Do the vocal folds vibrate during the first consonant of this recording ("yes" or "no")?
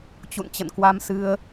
no